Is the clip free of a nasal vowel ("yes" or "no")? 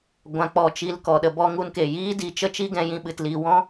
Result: no